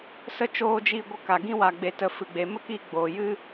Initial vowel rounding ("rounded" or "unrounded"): unrounded